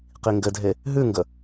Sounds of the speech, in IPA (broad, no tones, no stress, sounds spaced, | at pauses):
q i ŋ ɡ ɘ dʱ e | ɦ ʉ ŋ ɡ ə